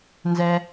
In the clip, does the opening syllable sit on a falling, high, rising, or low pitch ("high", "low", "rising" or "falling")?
low